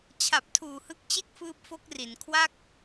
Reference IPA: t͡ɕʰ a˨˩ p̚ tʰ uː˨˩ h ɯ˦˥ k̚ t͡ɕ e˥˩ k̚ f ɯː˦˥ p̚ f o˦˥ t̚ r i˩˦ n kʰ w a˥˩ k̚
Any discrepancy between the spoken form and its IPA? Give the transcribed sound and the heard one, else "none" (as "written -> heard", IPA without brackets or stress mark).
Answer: t̚ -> k̚